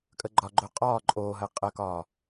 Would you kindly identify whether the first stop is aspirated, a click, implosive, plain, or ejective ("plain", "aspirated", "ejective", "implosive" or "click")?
ejective